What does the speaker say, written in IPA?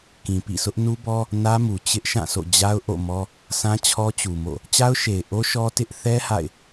k ĩ˨ p ḭ˦˨ s ʊ˦ ʔ n u˦ b ɔ˦ | n ä˦ m u˨ t͡ɕ ɪ˦ ʔ ʃ ã˦˨ sʰ o̰˦˨ d͡ʑ a˦ ʊ̯ ʔ o̰˦˨ m ɔ˦ | sʰ ã˦ t͡ɕʰ ɔ˦ t͡ɕ u˨ m o̰˦˨ | t͡ɕ a˦ ʊ̯ ʃ e˨ ɪ̯ ʔ o˦ ʃ ɔ˦ t ɪ˦ ʔ θ ɛ˦ h a̰˦˨ ɪ̯

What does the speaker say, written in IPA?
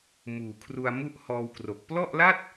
m uː˨˩ kʰ r u˧ a̯ m u˥˩ ʔ h ɔː˧ w k r o˨˩ k̚ p l ɔ˥˩ ʔ l a˥˩ t̚

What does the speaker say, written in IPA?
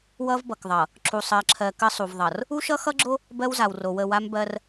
w ʌ˦ v b ʌ˨ k ðˤ ʌ˨ | ǁ u˨ sˤ ɜ˨ ǁʰ ɜ˨ k ə˦ sˤ u˨ v ðˤ ʌ˨ r | u˦ ʃ ʌ˦ x ʌ˦ ɡ͡ǁ o˦ | b ɜ˦ w z a˨ w r o˨ w ə˦˨ w a˦ m b ɜ˦ r

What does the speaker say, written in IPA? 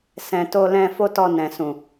s ɛ̃˨ t o˧ l ɛ̃˧ f o˦ t ɔ˧ n ɛ̃˨ s ũ˨

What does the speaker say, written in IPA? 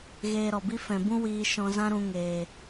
ɣ eː˧ ɾ ɔ˨ b i˦ f ɛ̃˨ b ũ˦ w iː˧ ʃ ɔ̃˧ z ã˦ ɾ ũ˧ ŋ eː˨

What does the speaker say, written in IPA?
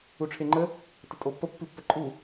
u ʈ͡ʂʰ e ŋ͡ǃ ə | t ə tʼ o pː ə pː i pː ə ǃʼ u

